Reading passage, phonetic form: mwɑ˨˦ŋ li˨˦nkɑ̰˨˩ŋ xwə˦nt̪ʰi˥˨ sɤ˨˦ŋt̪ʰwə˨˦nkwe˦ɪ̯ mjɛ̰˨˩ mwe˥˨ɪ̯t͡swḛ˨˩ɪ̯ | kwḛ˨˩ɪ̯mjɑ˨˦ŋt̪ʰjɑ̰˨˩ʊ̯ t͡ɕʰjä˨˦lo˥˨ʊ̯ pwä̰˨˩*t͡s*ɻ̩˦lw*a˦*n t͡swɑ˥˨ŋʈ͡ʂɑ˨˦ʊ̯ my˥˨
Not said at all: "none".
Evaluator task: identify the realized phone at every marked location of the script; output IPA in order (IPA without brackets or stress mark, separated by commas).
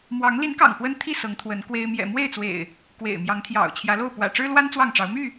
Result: ʈ͡ʂ, a˦